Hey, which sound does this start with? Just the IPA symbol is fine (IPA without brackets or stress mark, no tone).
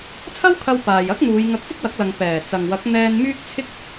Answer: t͡sʰ